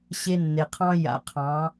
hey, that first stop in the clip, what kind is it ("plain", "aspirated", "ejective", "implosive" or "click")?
aspirated